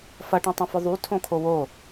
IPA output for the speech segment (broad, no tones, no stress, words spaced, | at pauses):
fɐʈũtˤɐ̃fʊ ðˤytʰõkʰo wo